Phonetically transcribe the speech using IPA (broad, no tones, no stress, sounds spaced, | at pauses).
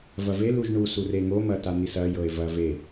v ɐ v e l u ʒ ɳ u s u r e ŋ o m ɐ t a n̪ i s ɐ j ɤ e̯ v ɐ v e